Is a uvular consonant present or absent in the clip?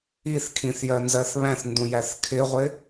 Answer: present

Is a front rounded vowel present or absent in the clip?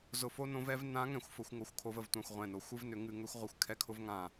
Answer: present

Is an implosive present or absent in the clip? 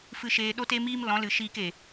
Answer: present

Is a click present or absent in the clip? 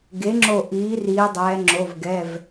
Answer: present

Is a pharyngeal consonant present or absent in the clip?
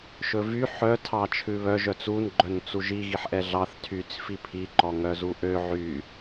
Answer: present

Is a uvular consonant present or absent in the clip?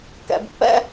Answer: absent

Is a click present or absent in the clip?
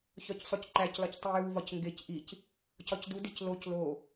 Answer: present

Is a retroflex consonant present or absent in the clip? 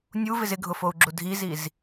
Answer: absent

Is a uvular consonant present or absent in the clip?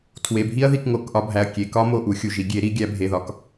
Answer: absent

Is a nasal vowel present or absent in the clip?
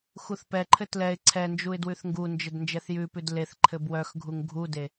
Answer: absent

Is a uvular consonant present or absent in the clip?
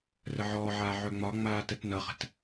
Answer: present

